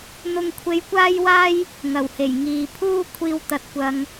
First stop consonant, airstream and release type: aspirated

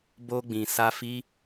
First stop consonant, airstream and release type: plain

